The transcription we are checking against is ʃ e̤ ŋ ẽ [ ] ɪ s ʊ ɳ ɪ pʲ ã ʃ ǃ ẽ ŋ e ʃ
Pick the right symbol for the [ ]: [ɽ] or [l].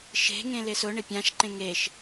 l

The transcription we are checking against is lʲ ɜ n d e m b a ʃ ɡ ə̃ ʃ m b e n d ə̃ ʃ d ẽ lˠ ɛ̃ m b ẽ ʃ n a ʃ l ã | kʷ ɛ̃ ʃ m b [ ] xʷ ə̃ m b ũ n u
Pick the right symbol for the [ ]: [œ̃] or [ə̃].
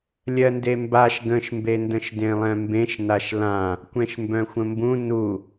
œ̃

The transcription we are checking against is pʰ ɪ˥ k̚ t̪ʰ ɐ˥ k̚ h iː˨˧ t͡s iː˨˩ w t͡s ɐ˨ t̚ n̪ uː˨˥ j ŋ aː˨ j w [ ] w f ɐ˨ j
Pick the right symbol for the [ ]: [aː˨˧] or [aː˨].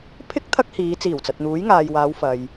aː˨˧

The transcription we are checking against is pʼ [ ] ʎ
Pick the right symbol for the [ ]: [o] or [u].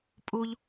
u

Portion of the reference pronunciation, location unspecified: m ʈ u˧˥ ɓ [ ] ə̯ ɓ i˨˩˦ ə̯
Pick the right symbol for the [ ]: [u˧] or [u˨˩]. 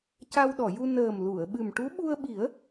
u˧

